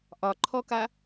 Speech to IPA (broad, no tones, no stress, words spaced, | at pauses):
ʔɒǃʰɔka